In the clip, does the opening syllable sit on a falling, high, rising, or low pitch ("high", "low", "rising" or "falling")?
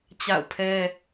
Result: falling